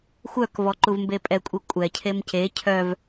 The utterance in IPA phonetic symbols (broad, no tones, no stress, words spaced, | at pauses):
xʷœkvɔ ǃuvmbepʼɛkʷʼi kʷʼɛcʰem ce cʰœv